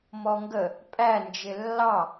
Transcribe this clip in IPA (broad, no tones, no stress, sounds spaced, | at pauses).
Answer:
m ɔ ŋ ɡ ə | pʼ æ n d͡ʒ ɪ lː ɑ